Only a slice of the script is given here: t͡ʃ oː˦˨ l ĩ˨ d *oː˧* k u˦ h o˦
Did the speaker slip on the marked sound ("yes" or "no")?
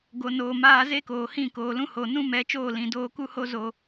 no